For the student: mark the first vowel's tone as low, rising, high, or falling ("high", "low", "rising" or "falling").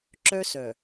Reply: high